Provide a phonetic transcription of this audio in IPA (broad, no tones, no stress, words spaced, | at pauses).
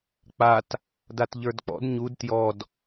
k͡pat | datʎə˞dk͡pɔ̰d ɲud tjɔd